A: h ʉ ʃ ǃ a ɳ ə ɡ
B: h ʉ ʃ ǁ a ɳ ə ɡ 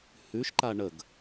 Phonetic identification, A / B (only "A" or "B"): A